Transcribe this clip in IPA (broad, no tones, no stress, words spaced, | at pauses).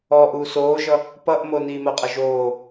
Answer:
ɔʔu soːʒʌ | pʌʔmo niːmoqʼʌʒoː